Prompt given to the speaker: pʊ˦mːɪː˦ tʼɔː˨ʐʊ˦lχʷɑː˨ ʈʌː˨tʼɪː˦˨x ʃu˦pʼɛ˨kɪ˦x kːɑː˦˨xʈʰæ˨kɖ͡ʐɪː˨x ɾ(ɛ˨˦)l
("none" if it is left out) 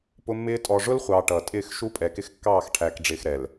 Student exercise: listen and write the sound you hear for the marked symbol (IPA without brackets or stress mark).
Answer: ɛ˨